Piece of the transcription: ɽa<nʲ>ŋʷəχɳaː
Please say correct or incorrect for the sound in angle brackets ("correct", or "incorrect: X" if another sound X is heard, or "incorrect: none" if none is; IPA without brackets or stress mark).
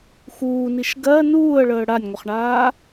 correct